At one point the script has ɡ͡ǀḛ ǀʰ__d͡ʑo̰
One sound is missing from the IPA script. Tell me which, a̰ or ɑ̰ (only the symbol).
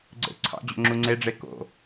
ɑ̰